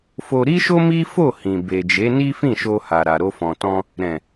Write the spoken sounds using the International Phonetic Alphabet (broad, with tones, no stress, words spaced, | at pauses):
fo˧ɾi˦ʃo˦ mi˦fo˦˨ hĩ˨be˨d͡ʒe˨˦ ni˦fĩ˦˨ʃo˧ha˨ ɾa˨ɾo˧fɔ̃˨tɔ̃˧ | ɾɛ̃˨